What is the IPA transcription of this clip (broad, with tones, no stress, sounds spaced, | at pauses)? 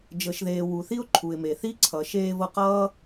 d͡ʒ ɤ˩ ʃ ð eː˩ w u˩ θ i˥ ʊ̯ ǃʰ u˩ ɪ̯ m e˩ θ i˥ ǀʰ ʌ˩ ʃ eː˧ v ɤ˧ q ʌː˥